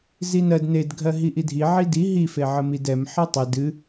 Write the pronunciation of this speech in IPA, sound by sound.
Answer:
zinɜd nedɡʱɜ ɦiʔidʱi ʕidi ɦife ʕəmidɛm ħɨtˤɨ dɨ

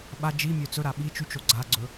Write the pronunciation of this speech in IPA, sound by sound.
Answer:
ɓa d͡ʒimʲø t͡sɵɾa ɓi t͡ʃyt͡ʃo ɡ͡ǀaɡ͡ǀɵ

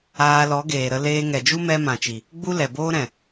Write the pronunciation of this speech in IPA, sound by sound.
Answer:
aː˧ lɔ˨˦ɡeː˨ɾə˧ leː˧ŋɛ˨d͡ʒu˦mɛ˧ mã˨t͡ʃi˨ | ɡ͡bu˦lɛ˨boː˦ɾɛ̃˨

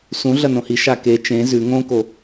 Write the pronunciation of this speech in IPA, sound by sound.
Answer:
sũɮɐ nõhiʃa ke t͡ʃẽ zʉ ŋõko

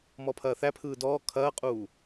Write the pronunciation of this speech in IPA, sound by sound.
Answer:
mɔpʰɐːθæpʰɯː dɔː kʰɐːqʼuː

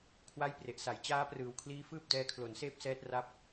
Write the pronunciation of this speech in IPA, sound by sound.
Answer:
kʰwa˦˥jpre˨˩ʔsa˩˦j t͡ɕaː˦˥prɯː˩˦wkʰliː˦˥fɯː˥˩p̚ dɛː˧kʰlo˩˦nseː˥˩p̚sɛː˦˥t̚ ra˥˩p̚

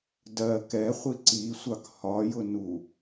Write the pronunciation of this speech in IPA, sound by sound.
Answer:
dɜ kɛχʷi ǀisʷɑk hɒjʊ nu

